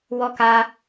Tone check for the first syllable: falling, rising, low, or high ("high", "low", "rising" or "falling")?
high